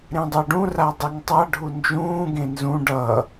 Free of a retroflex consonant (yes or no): no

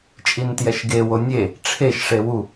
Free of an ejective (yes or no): no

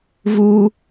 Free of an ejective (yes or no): yes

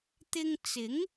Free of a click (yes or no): yes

